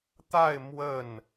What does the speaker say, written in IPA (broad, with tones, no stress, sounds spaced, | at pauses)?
t̪ a˥˧ ɪ̯ m w ə˥˩ n